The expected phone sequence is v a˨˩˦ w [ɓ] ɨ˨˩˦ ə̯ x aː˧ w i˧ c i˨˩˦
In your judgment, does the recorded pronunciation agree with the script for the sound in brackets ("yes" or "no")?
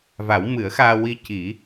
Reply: no